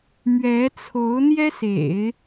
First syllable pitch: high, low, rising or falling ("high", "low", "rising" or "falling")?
rising